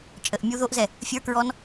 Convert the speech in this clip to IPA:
t͡ʃʼ ə ʔ mʲ u ð o ʔ z ɛ | fʲ ə˞ k ɹ ɔ n

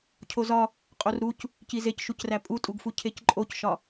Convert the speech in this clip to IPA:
cʰ o z ɒ | qʼ o r ɾ u c | c i z e c ʃ u c r æ pʼ u tʼ u ɡ f u cʰ e c ǃʼ o c ʃ ɒ

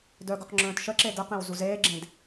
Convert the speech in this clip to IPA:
d œ ɡ ɵ q ŋ͡ǁ œ̃ː t ʃ ə ǁ e d ə q ẽ w z u z eː ɡ͡ǁ ẽ d

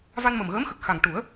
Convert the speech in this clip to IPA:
v a˧ n m ə˨˩ m ɣ əː˧˥ m x ə˨˩ k̚ x a˨˩ ŋ ʈ u˨˩˦ ə̯

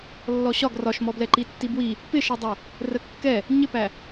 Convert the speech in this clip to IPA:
lː ɔ ɕ ɒ ɡ r ɒ ʃ m ɔ b l ɛ ǃ i tː i b w i | p ɪ ʃ ɛ dˤ æ | r ə kː ɛ | ɲ ɪ p æ

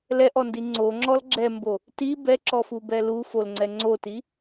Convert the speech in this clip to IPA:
l ɛ ʔ ɔ n d i ŋ͡ǀ o ŋ͡ǁ ɔ l ɡ͡ǁ ɛ m b o | t i b ɛ ǁ ɔ f u b ɛ l u f o l ŋ͡ǀ ɛ ŋ͡ǀ o t i

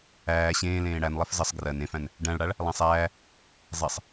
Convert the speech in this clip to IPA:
æː ɕ ẽː l ẽː ɽ æ n lˠ ɛ f z ə sˤ ɡ r ɜ n ẽ f æ̃ n | ɖ æ̃ ɭ ɽ a ɭ | lˠ æ̃ sˤ æː | zˤ ɛ sˤ

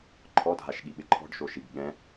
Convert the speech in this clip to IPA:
ǃʰ ɔ dʱ a ʃ ɠ i ɓ ɪ ǃʰ ɔ̤ ɖ ʃ o ʃ i ɡ ɠ ɛ̃

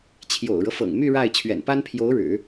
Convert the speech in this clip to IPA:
t͡ɕʰ j o̰˨˩ ʊ̯ ɻ ɤ˦ f ɤ̰˨˩ ŋ m y˥˧ ɻ a˥˩ ɪ̯ t͡ɕʰ ɥ ɛ̰˨˩ n p a˥ n pʰ j o˧˥ ʊ̯ ɻ ɻ̩˨˩˦

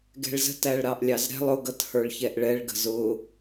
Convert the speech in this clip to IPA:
ɡ ɛ̤ ɭ z ə̤ t æ ɭ ɾ ɑ ʔ lʲ ɑ z ɾ ɛ̤ lˠ ʊ ɡ ʌ t h ə˞ ɭ ç ɛ ʔ ɭ ɛ ɭ ɡ ə̤ z ʊ

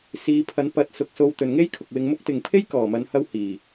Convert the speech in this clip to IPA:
s iː˨˧ pʰ ɐ˨˥ n p ɐ˨˥ t̚ s ʊ˨ k̚ s o˧ w t̪ ɵ˨ n ŋ e˥ j kʰ ʊ˨ k̚ w ɪ˧ ŋ m ʊ˥ k̚ t̪ ɪ˨ ŋ pʰ e˥ j k ɔː˨˩ m ɐ˨˧ n h ɐ˥ w h iː˨˩

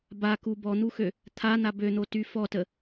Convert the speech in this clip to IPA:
b a k u b ɔ n̪ u x ø | t̪ʰ a n̪ a b ø n̪ o t y f ɔ t ə

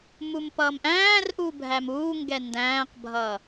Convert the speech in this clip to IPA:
m u m p ʌː m ʔ æ̃ː r ʔ u bʱ æ m uː ŋ ɡ ɛ n d æ̃ː q bʱ ʌː

